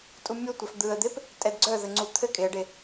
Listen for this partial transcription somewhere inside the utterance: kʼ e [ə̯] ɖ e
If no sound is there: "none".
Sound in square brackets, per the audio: ə̯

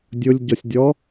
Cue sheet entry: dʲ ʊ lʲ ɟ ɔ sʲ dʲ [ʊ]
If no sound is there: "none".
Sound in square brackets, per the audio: ɔ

